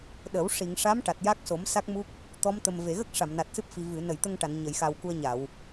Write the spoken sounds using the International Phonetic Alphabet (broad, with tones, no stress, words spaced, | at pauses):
ɗə˨˩˦w ʂi˨˩˨ŋ ʂa˧˥mʈa˨˩t̚ ja˦˥k̚so˨˩˦m sa˦˥k̚mu˦˥k̚ | t̪ɔ˧˥mt̪ə˨˩m ve˨˩˨ɣə˦˥k̚ ʂa˨˩˨mna˨˩t̚sɨ˦˥p̚fi˨˩ vɨ˨˩˨ nə˨˩˨jt̪ə˧ŋʈa˨˩˨n ɲə˨˩˨jxa˨˩w ku˧ə̯ɲa˨˩˨w